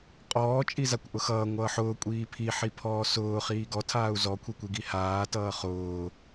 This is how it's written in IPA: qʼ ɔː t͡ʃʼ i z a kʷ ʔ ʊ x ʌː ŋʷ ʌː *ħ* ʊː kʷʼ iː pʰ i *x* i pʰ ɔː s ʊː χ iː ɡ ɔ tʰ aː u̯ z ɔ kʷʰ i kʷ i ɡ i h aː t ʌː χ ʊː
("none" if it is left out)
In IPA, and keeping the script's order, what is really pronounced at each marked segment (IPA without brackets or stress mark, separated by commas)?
ħ, ħ